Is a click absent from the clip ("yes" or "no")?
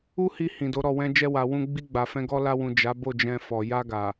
yes